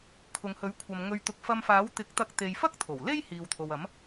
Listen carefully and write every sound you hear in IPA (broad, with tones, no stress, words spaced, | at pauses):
kʰʊ˨ŋhɵ˨˥ɥkʷʰɐ˨m ŋɵ˧ɥt̪ʊ˧k̚ fɐ˧mfaː˨˥wt̪ɪ˨˥k̚t̪ɐ˧k̚ t̪e˨jfɐ˥k̚ t̪ʰo˨˩w le˥j hiː˨wt̪ʰo˨w ɐ˨˥m